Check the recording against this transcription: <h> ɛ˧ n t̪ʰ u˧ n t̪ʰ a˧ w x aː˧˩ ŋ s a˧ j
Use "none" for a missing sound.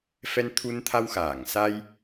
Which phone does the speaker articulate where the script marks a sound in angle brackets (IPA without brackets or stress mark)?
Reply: f